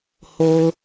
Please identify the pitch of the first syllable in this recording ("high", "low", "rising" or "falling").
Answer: low